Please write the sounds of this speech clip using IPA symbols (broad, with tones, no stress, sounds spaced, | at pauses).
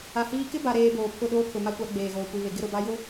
a˨ h iː˦ k ɪ˦ b a˨ ɾ eː˨ b oː˨ pʰ ʊ˦˨ ɗ oː˦ kʰ ʊ˨ m a˦ kʷ a˨˦ ɡ͡b eː˨ ɣ oː˨ kʷ i˨ β e˨ ɡ ɪ˦ ɾ ʊ˨ b a˦ j ʊ˦